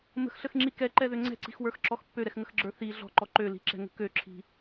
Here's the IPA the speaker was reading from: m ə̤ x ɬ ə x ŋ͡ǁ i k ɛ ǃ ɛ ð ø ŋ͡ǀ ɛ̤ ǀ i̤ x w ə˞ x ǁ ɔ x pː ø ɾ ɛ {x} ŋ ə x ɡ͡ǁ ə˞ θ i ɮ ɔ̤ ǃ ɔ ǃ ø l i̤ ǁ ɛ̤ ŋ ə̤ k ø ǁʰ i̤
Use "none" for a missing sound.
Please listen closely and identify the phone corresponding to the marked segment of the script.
x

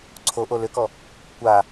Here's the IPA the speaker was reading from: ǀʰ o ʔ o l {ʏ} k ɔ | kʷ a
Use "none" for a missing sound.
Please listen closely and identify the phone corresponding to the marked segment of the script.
ʏ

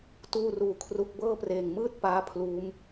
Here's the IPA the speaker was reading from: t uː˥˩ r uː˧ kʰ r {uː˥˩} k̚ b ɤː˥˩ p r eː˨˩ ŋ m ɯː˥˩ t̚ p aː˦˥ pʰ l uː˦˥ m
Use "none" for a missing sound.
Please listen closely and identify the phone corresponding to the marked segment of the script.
u˥˩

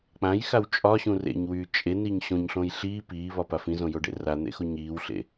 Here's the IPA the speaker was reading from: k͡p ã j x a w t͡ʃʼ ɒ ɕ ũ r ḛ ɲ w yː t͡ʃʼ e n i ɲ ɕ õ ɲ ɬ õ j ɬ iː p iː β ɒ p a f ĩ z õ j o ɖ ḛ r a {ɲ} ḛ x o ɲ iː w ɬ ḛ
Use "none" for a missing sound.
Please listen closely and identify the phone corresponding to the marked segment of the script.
n̪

